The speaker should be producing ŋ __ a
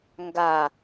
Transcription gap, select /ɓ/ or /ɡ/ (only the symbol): ɡ